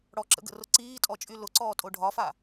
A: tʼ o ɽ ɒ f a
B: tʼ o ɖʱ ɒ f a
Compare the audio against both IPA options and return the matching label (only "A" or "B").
B